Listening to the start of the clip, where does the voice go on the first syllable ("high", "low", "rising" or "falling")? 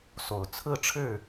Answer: low